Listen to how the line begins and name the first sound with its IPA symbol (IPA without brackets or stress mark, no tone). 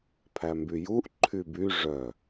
pʰ